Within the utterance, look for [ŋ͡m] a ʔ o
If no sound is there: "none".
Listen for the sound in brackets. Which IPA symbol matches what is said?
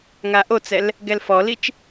ŋ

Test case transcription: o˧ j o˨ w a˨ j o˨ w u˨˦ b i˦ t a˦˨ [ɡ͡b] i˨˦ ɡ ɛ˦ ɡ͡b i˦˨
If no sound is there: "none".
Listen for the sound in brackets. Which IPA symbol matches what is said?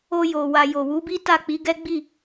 k͡p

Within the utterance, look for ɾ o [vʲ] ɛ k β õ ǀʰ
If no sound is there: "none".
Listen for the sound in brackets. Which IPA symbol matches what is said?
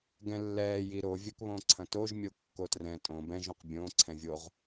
vʲ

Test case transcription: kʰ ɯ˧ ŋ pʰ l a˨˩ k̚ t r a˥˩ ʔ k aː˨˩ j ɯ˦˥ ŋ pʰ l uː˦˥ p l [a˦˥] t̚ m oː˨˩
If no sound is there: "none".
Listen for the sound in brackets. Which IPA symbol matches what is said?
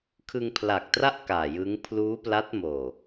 a˦˥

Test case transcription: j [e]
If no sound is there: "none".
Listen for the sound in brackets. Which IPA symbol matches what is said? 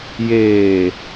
eː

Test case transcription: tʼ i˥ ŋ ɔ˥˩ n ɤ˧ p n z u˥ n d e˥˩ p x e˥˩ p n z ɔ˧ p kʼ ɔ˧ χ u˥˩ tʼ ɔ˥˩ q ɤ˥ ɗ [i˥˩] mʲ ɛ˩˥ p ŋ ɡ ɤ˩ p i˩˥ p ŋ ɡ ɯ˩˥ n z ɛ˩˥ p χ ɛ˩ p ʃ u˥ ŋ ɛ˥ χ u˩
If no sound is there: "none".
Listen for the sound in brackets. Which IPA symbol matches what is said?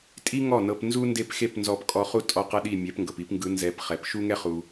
i˥˩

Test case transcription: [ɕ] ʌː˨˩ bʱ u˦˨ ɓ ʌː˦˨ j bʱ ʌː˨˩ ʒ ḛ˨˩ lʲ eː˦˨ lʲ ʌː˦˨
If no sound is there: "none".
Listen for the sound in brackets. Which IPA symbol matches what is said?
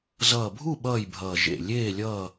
z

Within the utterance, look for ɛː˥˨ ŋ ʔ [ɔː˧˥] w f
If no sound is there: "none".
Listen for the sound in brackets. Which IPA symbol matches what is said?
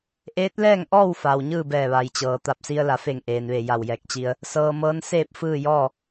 ɔː˥˨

